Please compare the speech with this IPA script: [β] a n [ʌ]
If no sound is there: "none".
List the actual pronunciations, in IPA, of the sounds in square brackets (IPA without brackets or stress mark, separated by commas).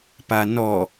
p, ɔ